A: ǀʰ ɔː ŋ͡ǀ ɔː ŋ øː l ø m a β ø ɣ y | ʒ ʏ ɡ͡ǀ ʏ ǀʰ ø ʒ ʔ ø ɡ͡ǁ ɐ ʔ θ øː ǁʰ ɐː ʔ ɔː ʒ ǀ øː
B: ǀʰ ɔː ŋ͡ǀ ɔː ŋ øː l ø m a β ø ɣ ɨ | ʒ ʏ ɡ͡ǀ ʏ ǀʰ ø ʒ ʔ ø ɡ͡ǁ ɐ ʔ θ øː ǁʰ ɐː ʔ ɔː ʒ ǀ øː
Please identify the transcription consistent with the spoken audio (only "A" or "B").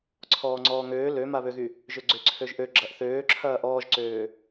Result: A